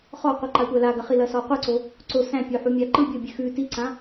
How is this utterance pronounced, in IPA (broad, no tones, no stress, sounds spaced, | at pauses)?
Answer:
χ ɔ qʷ i ǃ a tʷ æ l a ɡ ɐ χ i l ɐ s ɔ qʷ ɯ ǀ o | ǀ o s æ̃ pʲ o ħ u mʲ a ǃ ɯ bʲ o bʲ ʉ x ʉ t i ǀ ã